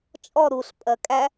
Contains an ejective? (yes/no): yes